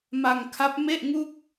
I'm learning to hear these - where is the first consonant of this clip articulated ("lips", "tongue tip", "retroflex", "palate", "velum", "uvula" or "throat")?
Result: lips